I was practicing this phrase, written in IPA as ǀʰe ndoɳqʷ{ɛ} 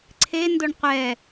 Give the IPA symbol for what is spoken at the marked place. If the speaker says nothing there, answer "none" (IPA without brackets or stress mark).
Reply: ɛ